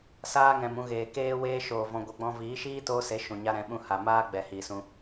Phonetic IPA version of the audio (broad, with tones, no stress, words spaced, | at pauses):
saː˧ŋɛ̃˨m ũ˧ɣeː˨ keː˧weː˧ʃoː˨ vɔ̃˧ɡʷe˧ɡ͡bɔ̃˦ viː˨˦ʃiː˦ toː˧se˨˦ ʃũ˨ɲa˧ɾɛ̃˨˦ɓũ˧ ha˨ maː˦ɡ͡bɛ˨ hiː˨sũ˧